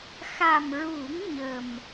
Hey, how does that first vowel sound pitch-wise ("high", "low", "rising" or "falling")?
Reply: low